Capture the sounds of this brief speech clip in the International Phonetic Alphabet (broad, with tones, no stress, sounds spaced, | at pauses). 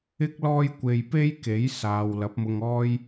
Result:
ɪ˥ k̚ l ɔː˥ j kʷ e˧ j p e˥ j k e˨˥ j s aː˨ w l ɐ˨˥ p̚ m ʊ˧ ŋ ɔː˥ j